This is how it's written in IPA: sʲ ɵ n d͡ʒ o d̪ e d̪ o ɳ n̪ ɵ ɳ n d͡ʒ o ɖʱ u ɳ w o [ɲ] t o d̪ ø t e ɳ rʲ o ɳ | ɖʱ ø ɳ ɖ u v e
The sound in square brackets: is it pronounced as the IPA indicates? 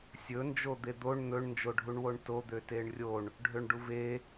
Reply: no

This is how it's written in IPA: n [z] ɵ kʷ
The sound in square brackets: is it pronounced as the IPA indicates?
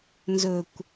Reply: yes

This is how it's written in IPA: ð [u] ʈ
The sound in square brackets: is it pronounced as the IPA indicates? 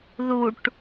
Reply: yes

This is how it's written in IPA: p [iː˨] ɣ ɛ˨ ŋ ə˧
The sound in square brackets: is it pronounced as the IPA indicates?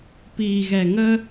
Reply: yes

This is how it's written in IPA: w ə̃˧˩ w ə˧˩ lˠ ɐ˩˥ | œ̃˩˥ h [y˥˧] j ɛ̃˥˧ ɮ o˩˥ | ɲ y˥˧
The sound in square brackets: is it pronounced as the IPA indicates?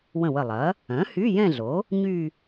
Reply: no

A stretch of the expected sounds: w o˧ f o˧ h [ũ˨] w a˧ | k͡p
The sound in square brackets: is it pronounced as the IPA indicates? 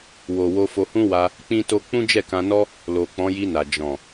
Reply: no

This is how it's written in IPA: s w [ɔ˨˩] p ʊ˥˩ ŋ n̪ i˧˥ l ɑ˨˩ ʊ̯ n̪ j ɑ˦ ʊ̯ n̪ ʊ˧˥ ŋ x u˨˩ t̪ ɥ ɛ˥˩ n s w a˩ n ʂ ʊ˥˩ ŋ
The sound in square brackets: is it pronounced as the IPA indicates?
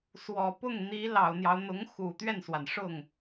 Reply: yes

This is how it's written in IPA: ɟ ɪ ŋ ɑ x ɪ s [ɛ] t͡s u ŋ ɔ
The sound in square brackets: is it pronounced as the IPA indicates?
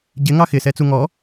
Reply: yes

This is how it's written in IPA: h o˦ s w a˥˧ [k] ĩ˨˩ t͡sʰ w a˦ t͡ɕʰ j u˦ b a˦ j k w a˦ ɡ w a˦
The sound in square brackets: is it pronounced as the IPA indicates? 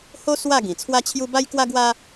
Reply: no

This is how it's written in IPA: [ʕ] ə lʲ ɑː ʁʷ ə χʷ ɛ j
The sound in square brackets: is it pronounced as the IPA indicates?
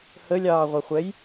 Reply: no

